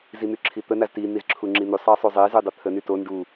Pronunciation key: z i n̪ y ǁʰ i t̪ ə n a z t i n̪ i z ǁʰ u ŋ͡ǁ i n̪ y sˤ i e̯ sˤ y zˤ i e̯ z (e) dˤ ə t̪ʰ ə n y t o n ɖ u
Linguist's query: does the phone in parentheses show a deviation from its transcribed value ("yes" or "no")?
yes